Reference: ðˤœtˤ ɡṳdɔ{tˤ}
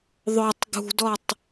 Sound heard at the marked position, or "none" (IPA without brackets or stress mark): tˤ